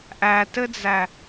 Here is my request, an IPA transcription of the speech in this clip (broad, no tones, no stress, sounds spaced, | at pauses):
ʔ æ t ɘ d͡z æ